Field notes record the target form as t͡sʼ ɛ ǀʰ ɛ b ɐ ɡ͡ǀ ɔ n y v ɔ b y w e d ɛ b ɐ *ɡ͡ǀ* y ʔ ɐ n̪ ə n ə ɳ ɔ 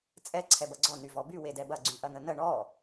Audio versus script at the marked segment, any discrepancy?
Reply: no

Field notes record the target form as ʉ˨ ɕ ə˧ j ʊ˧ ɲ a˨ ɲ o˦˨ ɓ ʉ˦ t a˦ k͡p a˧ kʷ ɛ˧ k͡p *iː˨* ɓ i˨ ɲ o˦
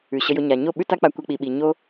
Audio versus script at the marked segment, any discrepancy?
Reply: yes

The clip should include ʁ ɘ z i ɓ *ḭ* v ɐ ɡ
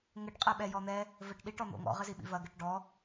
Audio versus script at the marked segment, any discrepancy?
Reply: no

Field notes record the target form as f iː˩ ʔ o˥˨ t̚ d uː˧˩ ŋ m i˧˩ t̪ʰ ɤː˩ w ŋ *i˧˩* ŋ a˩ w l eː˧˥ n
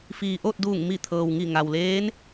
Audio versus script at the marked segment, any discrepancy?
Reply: no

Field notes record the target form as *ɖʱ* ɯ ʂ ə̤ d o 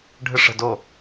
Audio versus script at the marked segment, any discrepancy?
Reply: no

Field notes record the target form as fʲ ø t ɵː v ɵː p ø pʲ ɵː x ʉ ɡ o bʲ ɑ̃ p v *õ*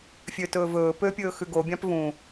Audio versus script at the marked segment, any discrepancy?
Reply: yes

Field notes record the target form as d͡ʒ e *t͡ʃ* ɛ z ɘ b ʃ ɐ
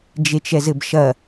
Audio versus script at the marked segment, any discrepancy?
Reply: no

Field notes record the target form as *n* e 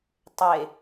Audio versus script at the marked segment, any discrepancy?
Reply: yes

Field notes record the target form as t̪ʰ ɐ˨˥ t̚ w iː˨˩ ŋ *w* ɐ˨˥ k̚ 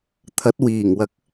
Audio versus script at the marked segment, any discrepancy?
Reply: no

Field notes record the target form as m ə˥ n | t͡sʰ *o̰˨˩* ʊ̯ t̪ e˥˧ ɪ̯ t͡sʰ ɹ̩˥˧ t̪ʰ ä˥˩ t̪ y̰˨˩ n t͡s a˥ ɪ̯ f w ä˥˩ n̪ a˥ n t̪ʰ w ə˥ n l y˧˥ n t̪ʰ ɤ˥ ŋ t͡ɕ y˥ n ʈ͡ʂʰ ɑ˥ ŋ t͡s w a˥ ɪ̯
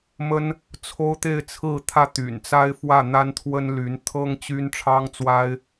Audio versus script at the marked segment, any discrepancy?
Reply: yes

